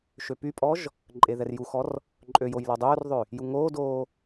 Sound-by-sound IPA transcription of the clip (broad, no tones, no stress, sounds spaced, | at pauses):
ʃ ø p y pʼ ɔ ʒ | ǃʼ e ð ɛ r j u x ɔ r | ǃʼ ø j o j l ɔ dˤ øː r ðˤ ø | j u ŋ oː d oː